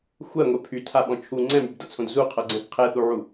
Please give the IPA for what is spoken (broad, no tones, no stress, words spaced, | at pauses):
xʷɜŋʷɛ pʰytʰaɓɔ̃ t͡ʃʰu ŋ͡ǀɛ̃mybdʌt͡sʰõd zuqʰʌɡ͡ǀɛ̃θ qʰɛθuʕu